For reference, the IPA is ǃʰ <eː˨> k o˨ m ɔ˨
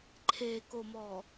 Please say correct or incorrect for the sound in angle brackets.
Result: correct